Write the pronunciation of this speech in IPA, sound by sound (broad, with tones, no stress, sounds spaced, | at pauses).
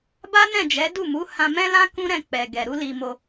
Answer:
b a˦ n ɛ̃˦˨ d͡ʒ ɛ˨˦ d u˦˨ m u˨˦ h ã˧ m ɛ̃˦ l ã˦ k ũ˦ ɾ ɛ̃˦˨ k͡p ɛ˨ ɡ ɛ˨ ɾ u˨˦ l i˧ m o˧